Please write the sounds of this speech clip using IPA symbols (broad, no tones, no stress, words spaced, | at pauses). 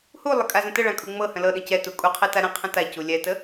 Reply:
hulˠə kʼazə̃təɭã kʼuŋ͡mɤhə̃ lɤɗə̃ cɛtu kʼuqʰɛ taɾə̃qʰə̃ ta culʲɛtə